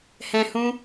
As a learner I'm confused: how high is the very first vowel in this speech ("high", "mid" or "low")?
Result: mid